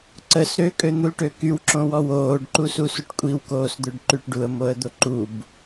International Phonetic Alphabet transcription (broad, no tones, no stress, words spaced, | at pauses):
ǀəs ɾøkʼøn̪ulʈø kywǁõwɔ woːɖǃususuʈ kʷʼiwkoːsd̪øɖǃyʈ ɖuə̯moə̯d̪o ǃub